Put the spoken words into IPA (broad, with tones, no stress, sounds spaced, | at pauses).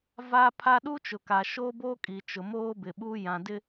v aː˦ pʰ a˦ ɗ u˦ t͡ʃ ʊ˨ k a˨ ʃ o˦ b oː˦ kʼ i˨ t͡ʃ ʊ˨ m oː˦ b ɪ˨ ɓ uː˦ j ã˨ d ɪ˦